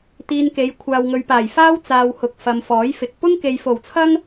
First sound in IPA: t̪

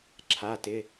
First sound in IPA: ǁʰ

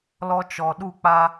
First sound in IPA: l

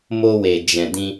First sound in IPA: m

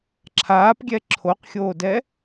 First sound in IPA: ǁʰ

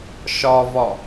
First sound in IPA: ʃ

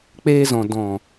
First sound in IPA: k͡p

